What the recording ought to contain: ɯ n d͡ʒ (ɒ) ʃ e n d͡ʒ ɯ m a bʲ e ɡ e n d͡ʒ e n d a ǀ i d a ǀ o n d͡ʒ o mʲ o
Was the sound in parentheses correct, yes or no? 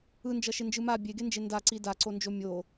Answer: no